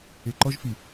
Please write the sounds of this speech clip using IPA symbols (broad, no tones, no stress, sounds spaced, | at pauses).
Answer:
e ǃ ɔ ʒ f i